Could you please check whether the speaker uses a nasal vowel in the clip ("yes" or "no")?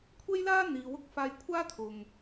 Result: no